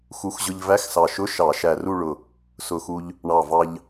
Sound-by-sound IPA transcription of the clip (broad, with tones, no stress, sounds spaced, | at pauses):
x u˨˥ x ʑ ʊ˧ ʎ v æ˧˥˧ x s ɑ˧˩ ʃ ʊ˧˥˧ ʃ ɑ˧˩˧ ʃ æ˧˩ r u˥˧ ɭ ʊ˧˩ | s ʊ˧˩ x u˧ ʎ | ɳ ɑ˧˩ v ɑ˧ ʎ